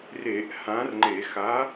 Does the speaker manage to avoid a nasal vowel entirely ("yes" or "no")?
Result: no